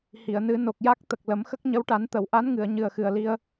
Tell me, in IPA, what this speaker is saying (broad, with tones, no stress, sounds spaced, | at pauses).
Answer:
h i˨˩˨ ə̯ n ɨ˨˩˦ n o˨˩ k̚ j a˦˥ k̚ t̪ ə˨˩ k̚ l ə˨˩˦ m x ə˦˥ k̚ ɲ ə˧˥ w ʈ a˨˩˦ n t̪ ə˨˩˨ w ʔ a˧˥ n ŋ ɨ˨˩˨ ə̯ ɲ ɨ˨˩ ə̯ x ɨ˨˩ ə̯ l i˧ ə̯